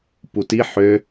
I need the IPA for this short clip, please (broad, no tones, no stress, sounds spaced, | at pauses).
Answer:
p u t i ħ ø